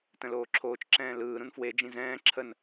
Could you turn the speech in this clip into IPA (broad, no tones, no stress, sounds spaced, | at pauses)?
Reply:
t ə̃ l oː ǁʰ oː t͡ʃ ǁ ɛ̃ː l ɯː ɾ ũ n f w e d͡ʒ ĩ z ɛ̃ː ǁʰ ə n